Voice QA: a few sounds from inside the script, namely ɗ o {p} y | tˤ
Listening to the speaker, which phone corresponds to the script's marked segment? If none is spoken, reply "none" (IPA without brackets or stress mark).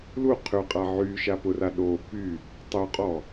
p